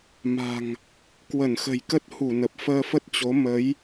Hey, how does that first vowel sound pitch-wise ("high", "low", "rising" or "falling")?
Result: low